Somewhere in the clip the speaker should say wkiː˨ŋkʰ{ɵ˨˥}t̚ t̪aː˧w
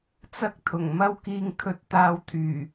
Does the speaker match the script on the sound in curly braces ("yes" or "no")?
no